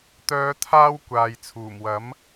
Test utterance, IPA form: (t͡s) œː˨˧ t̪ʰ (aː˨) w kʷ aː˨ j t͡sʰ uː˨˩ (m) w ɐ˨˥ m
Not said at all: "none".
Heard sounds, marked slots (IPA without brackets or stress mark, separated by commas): t̪, aː˧, m